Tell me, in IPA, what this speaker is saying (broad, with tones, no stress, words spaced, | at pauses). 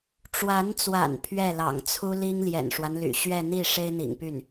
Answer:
ʈ͡ʂwa˧˥nt͡swa̰˨˩n pʰɥɛ˥˩lɑ̰˨˩ŋt͡sʰu˥li˥ŋ ljɛ̰˨˩nʂwa˦nly̰˨˩ ɕɥɛ˥˧n̪i˥˩ ʂe˥ɪ̯n̪ḭ˨˩ŋpy˥˩n